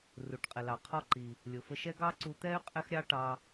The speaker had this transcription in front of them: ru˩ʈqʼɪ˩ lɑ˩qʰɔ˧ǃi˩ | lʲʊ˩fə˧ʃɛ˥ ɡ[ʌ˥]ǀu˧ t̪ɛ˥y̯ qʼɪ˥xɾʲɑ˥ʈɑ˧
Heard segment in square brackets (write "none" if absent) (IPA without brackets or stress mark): ɑ˥